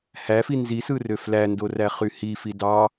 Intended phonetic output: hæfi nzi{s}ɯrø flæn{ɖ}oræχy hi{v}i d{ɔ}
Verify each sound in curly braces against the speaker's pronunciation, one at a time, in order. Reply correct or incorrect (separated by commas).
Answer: correct, incorrect, incorrect, incorrect